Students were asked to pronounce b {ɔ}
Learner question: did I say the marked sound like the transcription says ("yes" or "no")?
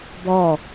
yes